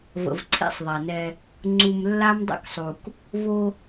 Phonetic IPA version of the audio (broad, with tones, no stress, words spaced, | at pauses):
və̰˨vǀʰḭ˦sˤðˤa˨nɛ˦ | ŋ͡ǀu˨mlːa˦mdˤə̰˦ksˤu˨k | vo˦